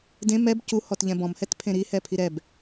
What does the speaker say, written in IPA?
dẽ mɛb cuhɔt ʎɛ̃bɔ̃mhɛt pʰẽɾihɛ pʰiɾɛb

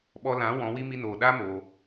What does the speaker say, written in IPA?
ɓɔ˧lã˨˦ wɔ̃˨˦wi˦ mi˧noː˨ɗaː˦ moː˧

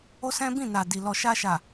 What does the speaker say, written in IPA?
o˦sɛ̃˦bĩ˦˨na˨ di˨ lɔ˨ʃa˧ʃa˨

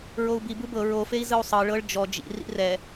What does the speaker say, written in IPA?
ɹou̯bi bɯbɤ ɹofei̯ zɯu̯sˤɤ ɭɤɭ d͡ʒɔ d͡ʒḭ rḭrɛ

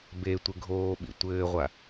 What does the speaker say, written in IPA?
betʷɪ ɡʱoːɓḭ tʷɘːʁʷa

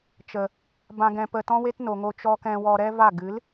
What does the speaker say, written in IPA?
t͡ʃə˨ | bã˧ɡɛ̃˧pə˧ tɔ̃˦we˦tno˨ŋo˧ t͡ʃɔ˧kɛ̃˧wɔ˧ɾɛ˦ va˦˨ ɡɨ˨˦l

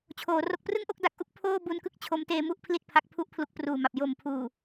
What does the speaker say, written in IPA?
t͡ɕʰoː˩˦ ro˨˩k̚prɯ˥˩ŋʔo˦˥k̚ da˨˩k̚ʔu˥˩k̚ pʰoː˥˩ bu˧nkɯ˥˩k̚ t͡ɕʰo˦˥mteː˧mu˥˩ʔ pʰli˥˩t̚pʰa˦˥k̚ pʰu˥˩ʔpʰlu˦˥k̚pruː˨˩ma˨˩p̚ jo˨˩mpʰuː˨˩

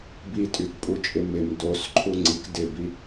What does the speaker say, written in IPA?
bitʼykpʼut͡ʃʼɪ mɪm dosǃʰu ŋ͡ǀik dɪbi

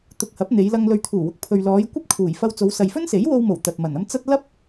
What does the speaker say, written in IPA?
t̪ʊ˨k̚ hɐ˨˥p̚n̪e˨˧jlɐ˧ŋ lɵ˨ɥt̪ʰuː˨˩wʊ˨k̚ pʰɵ˨ɥlɔː˨˧j kʷɐ˥p̚kʰuː˨˩j fɐ˧wt͡so˨˧wsɐ˨j fɵ˥nse˨˥jwo˧wmo˨˩w t̪ɐ˨t̚mɐ˨˩nɐ˥m t͡sɐ˥t̚ lɐ˥p̚

